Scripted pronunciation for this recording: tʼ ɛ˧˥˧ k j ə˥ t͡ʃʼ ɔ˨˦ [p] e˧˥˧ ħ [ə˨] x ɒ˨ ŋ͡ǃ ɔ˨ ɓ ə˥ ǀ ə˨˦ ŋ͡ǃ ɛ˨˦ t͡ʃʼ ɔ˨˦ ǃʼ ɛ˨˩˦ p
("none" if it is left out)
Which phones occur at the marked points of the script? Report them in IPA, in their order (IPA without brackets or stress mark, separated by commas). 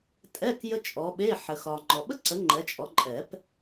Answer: ɓ, ə˨